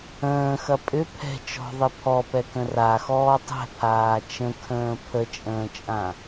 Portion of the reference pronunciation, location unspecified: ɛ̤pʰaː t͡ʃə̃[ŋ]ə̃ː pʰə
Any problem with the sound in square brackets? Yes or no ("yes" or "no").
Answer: yes